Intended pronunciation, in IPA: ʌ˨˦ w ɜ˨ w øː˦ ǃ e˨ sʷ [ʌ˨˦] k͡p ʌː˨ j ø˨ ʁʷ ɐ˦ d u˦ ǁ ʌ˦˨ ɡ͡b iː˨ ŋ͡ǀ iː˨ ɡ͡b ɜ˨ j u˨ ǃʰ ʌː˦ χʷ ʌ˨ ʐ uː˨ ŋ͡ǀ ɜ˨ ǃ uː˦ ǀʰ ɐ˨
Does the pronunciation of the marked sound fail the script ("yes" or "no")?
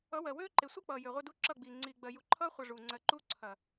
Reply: yes